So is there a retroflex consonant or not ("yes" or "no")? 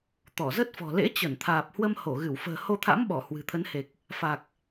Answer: no